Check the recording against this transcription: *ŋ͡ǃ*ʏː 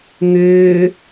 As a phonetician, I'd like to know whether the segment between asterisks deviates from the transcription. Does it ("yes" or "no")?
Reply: yes